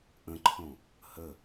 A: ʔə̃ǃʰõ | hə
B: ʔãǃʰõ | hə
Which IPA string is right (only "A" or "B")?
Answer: A